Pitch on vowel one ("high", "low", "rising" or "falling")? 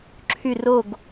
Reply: falling